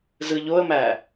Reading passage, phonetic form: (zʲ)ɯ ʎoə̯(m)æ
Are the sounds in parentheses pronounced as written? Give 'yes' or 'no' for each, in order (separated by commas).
no, yes